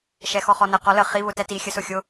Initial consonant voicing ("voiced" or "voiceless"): voiceless